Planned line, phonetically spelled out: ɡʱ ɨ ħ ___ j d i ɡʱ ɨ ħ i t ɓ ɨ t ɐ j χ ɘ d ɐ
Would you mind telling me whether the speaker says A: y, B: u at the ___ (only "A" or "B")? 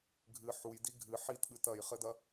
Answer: B